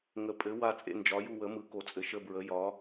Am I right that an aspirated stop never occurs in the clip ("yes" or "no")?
yes